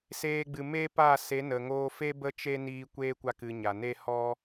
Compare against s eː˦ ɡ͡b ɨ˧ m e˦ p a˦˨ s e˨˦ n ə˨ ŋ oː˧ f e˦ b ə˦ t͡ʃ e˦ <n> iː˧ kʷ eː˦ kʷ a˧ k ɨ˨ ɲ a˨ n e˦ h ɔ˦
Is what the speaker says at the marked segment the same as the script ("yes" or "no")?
yes